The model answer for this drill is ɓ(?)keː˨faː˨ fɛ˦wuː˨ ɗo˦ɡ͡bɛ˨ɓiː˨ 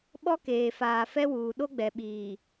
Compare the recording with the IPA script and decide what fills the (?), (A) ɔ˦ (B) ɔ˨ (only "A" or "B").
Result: A